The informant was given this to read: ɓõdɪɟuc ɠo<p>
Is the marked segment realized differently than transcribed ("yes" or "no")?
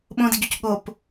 no